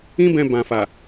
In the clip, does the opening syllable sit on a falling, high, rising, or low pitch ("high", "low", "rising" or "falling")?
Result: high